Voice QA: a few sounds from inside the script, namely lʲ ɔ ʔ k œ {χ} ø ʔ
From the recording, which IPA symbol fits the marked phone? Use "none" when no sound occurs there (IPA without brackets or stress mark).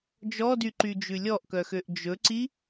x